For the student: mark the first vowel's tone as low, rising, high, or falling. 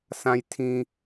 low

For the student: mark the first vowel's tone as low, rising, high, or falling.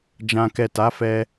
low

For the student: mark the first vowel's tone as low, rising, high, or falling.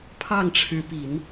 falling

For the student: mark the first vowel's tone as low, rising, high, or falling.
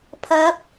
rising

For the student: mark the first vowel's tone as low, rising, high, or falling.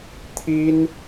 high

